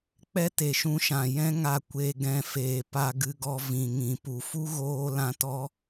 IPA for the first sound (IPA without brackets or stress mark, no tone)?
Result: k͡p